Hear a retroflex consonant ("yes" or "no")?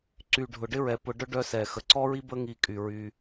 yes